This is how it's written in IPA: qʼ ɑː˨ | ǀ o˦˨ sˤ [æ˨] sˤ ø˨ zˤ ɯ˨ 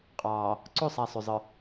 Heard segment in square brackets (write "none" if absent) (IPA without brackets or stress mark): æ˨